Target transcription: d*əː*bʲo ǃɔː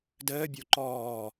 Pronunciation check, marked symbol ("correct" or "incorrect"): correct